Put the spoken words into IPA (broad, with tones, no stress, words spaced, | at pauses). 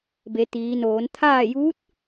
be˩˧t̪iː˩˧noː˩˧n t̪ʰaː˥˨ juː˧˥t̚